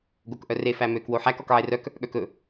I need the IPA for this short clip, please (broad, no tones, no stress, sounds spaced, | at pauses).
ɡ o k ʔ œ r e f æ m ø k w o ħ æ k ɔ k ʕ e r œ k | ɠ œ k ɵ